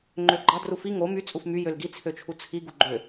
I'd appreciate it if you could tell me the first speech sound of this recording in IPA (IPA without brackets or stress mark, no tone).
ŋ͡ǃ